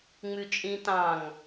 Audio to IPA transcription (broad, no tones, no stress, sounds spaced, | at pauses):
ŋ͡m ʉ t͡ʃʼ ĩ t ɑ̃ ŋ